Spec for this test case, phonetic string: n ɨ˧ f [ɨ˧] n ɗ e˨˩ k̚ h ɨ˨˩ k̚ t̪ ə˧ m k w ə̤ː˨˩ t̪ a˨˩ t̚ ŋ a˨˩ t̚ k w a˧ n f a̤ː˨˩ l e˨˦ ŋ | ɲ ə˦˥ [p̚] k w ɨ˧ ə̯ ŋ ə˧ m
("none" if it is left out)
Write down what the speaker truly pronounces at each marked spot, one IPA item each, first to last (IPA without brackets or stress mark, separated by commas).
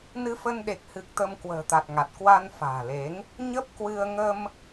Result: ə˧, p̚